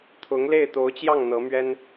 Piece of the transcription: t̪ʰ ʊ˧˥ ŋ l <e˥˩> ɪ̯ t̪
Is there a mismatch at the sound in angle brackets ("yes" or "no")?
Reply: no